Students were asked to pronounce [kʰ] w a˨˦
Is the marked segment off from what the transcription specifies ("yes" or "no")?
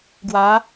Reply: yes